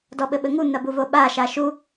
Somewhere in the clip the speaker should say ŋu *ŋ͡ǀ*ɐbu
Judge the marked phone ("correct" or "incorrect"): incorrect